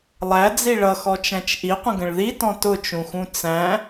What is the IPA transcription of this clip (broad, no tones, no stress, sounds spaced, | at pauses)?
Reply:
lˠ æ d͡z i ɭ ʌ x ɔ t͡ʃ æ̃ t͡ʃ ʔ i qʷ ə̃ ɡ ə̃ ɭ ð i t ɔ̃ t ʊ t͡ʃ ũ x ũ t͡s æ̃